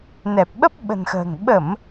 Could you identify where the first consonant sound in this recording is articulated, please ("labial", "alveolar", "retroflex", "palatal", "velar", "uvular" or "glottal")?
alveolar